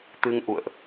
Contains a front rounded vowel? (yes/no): no